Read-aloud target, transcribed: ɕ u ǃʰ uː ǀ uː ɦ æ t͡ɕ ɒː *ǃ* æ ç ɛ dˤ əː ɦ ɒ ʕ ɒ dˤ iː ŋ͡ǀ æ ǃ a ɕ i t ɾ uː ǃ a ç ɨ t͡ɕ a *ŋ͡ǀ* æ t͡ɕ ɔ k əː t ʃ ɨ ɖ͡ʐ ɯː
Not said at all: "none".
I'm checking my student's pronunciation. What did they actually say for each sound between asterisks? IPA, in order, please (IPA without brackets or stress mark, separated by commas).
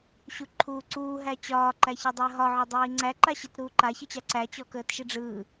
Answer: ǃ, ǀ